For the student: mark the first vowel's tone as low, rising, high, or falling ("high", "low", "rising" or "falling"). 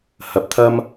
rising